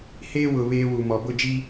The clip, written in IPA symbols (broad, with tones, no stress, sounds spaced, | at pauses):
h eː˦ w ʊ˨ β eː˦ w u˨ m ɔ˨ b ʊ˦˨ d͡ʒ i˦